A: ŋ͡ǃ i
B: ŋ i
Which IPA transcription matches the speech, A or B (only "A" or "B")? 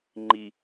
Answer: A